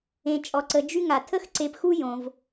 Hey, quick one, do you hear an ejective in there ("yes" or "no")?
yes